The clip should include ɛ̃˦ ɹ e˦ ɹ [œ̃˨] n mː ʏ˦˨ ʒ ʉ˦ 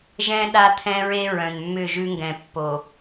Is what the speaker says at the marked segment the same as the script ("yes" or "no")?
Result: yes